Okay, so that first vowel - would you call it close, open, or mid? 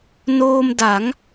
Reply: mid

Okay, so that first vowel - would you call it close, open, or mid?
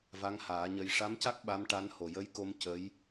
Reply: open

